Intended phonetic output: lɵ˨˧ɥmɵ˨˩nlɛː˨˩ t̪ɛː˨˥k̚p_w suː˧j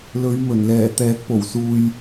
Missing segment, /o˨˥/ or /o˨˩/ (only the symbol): o˨˩